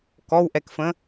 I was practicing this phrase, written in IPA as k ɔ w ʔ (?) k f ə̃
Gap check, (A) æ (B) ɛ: B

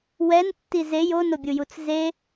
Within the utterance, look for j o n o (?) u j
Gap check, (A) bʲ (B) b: A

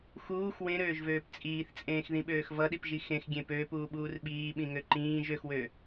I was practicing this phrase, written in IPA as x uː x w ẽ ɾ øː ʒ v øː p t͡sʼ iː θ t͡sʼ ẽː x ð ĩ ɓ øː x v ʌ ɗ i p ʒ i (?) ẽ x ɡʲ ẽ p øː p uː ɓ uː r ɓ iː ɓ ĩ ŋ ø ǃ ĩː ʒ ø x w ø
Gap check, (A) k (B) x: B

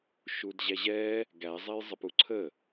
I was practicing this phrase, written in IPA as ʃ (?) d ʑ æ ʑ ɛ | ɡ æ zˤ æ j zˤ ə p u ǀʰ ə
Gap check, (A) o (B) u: B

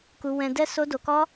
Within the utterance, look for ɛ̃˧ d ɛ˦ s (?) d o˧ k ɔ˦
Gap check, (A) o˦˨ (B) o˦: B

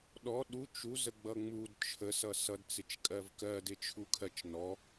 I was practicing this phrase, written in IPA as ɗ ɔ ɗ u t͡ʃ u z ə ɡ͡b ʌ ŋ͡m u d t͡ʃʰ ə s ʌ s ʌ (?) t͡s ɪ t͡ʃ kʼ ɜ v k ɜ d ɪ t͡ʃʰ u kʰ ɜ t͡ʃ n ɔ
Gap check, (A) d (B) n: A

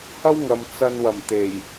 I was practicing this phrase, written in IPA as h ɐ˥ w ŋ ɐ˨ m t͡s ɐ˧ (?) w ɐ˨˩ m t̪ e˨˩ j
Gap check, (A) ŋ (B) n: B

